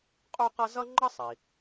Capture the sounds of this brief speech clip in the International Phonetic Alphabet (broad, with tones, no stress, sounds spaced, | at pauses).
qʼ u˥ q ʌ˥ z ʌ˥ ŋ͡ǃ ʌ˥ sˤ i˩